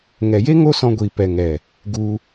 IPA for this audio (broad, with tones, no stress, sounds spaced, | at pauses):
ŋ ɛ˨ j e˦ ŋ o˦ s ɔ̃˧ ɡʷ iː˨ p ɛ˨ ŋ ɛ˨ | ɡ u˧